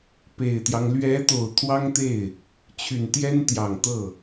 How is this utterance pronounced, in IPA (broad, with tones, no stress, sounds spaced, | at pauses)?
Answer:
p e˨˩ ɪ̯ t̪ j ɑ˦ ŋ l ɥ ɛ˧˥ t̪ o˨˩ ʊ̯ t̪ʰ w ɑ˥ ŋ t̪ e˥˩ ɪ̯ | t͡ɕʰ y˨˩ n t̪ j ɛ˥ n t̪ j ɑ˨˩ ŋ t̪ ɤ˥˩